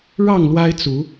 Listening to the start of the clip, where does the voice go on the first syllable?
falling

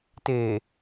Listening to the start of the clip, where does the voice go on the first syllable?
low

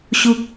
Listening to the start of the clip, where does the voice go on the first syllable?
high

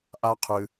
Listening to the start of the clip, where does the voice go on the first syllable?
high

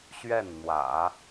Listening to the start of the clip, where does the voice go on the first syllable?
falling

